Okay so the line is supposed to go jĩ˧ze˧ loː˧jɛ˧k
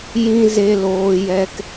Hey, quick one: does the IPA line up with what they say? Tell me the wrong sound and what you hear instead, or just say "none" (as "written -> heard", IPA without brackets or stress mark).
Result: none